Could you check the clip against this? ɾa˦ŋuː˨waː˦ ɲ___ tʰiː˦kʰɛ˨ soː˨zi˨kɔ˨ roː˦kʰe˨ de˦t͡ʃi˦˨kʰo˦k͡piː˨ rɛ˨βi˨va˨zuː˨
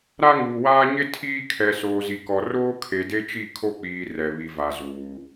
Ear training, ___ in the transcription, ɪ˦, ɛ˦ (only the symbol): ɪ˦